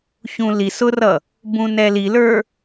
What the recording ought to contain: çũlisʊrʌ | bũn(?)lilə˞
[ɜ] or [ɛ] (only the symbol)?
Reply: ɛ